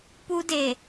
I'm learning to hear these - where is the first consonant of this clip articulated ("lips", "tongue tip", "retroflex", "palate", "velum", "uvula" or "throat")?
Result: lips